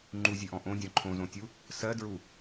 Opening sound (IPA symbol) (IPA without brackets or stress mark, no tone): ŋ͡ǃ